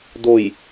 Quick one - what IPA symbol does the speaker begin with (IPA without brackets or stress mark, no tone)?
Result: d